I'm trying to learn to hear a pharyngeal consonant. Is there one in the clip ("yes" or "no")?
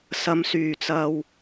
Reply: no